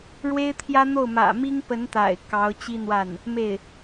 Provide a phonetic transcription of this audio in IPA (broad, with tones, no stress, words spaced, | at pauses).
ɻwe˥ɪ̯t̪ʰjä˥n̪o˥˩ʊ̯ mä̰˨˩mi˥ŋpə˧˥n t̪a̰˨˩ɪ̯ kɑ˧˥ʊ̯t͡ɕi˥n̪wa˥˩n | me˥˩ɪ̯